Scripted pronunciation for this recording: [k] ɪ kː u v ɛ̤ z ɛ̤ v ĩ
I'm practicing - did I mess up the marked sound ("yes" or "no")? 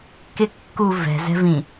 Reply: no